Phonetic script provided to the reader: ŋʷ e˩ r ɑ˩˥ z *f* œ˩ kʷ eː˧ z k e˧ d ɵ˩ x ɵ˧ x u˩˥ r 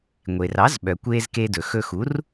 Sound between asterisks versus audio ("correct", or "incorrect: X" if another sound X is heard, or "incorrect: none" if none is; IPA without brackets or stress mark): incorrect: ɓ